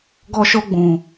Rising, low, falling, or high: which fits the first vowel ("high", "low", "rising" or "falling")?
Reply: high